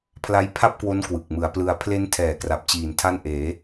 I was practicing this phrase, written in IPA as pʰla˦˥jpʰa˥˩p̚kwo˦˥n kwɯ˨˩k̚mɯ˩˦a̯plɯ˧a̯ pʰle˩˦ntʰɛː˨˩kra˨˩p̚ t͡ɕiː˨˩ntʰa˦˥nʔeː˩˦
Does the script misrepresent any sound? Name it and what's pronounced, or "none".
e˩˦ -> e˦˥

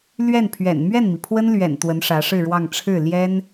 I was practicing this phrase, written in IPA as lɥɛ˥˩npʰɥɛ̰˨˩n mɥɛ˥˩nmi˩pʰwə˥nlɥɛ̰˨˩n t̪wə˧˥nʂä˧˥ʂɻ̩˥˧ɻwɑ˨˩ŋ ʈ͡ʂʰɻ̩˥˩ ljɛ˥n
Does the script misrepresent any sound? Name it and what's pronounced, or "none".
ɑ˨˩ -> ɑ˥˧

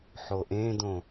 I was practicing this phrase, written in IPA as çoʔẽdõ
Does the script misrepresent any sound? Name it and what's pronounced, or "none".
ç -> ħ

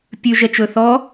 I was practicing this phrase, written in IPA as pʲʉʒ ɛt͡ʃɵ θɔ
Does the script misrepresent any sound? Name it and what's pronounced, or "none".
none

